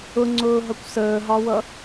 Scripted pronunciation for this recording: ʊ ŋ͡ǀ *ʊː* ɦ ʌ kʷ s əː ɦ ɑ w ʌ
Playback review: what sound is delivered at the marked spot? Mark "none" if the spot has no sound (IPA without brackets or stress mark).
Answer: ʊː